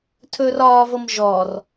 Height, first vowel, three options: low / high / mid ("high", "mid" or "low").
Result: mid